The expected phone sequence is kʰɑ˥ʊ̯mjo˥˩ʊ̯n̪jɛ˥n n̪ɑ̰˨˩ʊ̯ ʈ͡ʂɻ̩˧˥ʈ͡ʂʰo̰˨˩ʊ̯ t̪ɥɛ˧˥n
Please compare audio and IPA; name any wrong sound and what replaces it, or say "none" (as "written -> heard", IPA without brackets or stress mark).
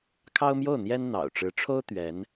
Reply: o̰˨˩ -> o˥